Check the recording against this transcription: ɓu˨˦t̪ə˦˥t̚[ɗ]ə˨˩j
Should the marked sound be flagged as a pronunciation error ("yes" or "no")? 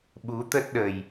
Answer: no